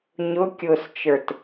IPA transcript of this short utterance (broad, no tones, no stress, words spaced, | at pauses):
ɲʊkʲʊːst͡ʃə˞t